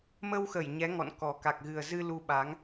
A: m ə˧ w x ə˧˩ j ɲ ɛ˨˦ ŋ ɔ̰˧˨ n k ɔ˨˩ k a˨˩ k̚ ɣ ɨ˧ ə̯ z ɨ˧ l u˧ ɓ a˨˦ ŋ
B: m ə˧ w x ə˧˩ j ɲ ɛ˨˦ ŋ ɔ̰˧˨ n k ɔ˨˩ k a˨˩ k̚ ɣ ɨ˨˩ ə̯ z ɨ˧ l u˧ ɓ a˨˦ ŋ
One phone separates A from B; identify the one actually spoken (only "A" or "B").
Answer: B